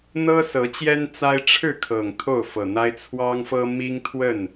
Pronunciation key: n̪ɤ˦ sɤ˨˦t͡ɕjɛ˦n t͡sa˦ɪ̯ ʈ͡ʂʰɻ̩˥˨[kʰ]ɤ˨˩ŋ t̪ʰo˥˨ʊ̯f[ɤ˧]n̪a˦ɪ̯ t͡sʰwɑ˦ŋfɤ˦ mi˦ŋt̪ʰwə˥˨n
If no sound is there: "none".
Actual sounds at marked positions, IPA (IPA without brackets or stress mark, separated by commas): kʰ, ɤ˨˩